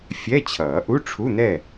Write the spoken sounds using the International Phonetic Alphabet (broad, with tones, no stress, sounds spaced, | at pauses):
fʲ ɛ˧˥˧ t͡ɕʰ ʌː˨˩˦ ʔ u˧˥˧ ʈ͡ʂʰ u˧˥˧ n̪ ɛ˥˨